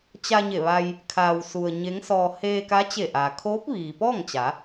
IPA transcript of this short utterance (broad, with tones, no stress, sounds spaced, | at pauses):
t͡ɕ a˧ ɲ e˧˩ ʋ a˧ j | kʰ aː˩ w s u˩ ə̯ ɲ e˧˥ ŋ s ɔː˧ h eː˧ k a˧˥ t͡ɕ e˧˩ ʔ aː˩ kʰ oː˧˥ p̚ ʋ iː˩ p ɔː˥˨ ŋ t͡ɕ a˩˧